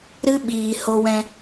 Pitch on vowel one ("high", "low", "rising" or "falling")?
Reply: high